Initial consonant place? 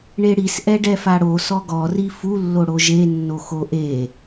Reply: retroflex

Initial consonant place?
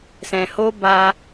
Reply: alveolar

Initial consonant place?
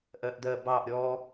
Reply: glottal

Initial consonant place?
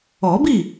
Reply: labial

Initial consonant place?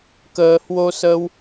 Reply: velar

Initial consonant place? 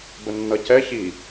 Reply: labial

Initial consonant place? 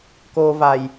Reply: velar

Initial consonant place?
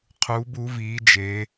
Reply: uvular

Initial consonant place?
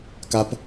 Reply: velar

